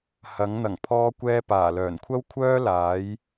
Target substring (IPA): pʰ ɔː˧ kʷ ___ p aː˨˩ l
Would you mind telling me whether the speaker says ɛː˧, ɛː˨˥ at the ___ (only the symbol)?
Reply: ɛː˧